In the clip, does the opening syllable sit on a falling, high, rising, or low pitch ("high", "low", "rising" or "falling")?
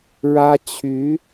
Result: high